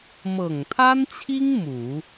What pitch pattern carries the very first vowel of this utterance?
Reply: low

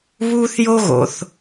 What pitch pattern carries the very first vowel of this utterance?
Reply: high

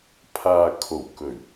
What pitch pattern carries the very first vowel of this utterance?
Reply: low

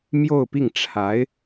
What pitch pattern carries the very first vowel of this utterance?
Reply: falling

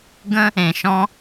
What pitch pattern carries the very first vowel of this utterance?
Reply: high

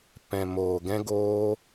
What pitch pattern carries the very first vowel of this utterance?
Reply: low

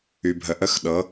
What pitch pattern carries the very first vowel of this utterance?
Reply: low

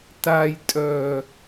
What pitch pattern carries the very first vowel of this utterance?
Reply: low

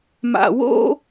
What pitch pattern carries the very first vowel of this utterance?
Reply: low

